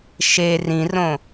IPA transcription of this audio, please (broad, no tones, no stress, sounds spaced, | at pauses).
ʃ e r ĩ r õ